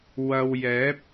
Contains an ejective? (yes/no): no